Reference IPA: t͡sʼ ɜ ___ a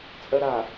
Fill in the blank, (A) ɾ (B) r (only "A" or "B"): A